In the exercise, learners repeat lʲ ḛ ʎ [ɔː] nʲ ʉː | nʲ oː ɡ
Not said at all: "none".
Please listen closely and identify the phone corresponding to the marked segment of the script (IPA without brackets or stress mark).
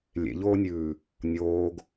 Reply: oː